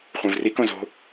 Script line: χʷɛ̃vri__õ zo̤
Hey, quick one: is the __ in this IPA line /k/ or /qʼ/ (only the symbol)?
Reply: k